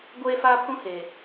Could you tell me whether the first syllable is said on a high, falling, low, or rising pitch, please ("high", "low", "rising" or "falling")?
high